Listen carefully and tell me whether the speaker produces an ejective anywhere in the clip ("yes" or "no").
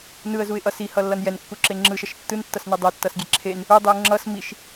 no